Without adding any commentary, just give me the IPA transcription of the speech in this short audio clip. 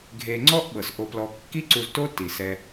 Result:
ɡʱe˨ŋ͡ǀɔ˦ʔɓɤ˩s ʔo˨plɔ˨ kːi˦ǀu˨zto˦ ti˩sɛ˨

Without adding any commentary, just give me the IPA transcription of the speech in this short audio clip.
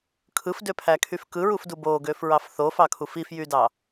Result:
kʰɯfdøpʰækʰyf kɯɹufdu boɡøfɹɑf θofɑkʰuf ifjydɑ

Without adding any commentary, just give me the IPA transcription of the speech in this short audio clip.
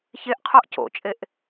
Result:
çeʔqʰoʔ co̰t͡ʃʼeʔ

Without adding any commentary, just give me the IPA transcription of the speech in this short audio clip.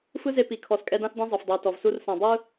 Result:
fɯ˦ze˧ pi˨kʰɔ˨skʼɛ˧dã˦s dẽ˦zˤɤ˨fdˤɯ˨wtɔ˨v su˧rsã˨ dˤɯ˦

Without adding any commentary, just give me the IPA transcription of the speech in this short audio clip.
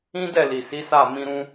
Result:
ĩ˦dɛ˦˨li˨si˨˦ sa˦˨ mĩ˧ɾũ˦

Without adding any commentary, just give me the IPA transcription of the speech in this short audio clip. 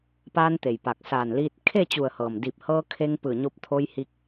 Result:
paː˧nt̪e˩j pa˧˩k̚ saː˧˩nliː˧t̚ kʰe˥˨t͡ɕu˧˩ə̯hɤː˩m di˧˩p̚hɤː˧kʰe˧ŋ pɯː˧˩ɲo˧p̚t̪ʰo˧j hi˧k̚

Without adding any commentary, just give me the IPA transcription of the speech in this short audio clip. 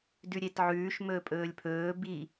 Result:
dʉɾʲetʕʉːʃ mɵːpʼɵːlʲpʰɵː bi

